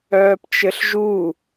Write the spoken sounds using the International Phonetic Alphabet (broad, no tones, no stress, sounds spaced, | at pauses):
œː p t͡ʃ ɘ ɬ ʒ u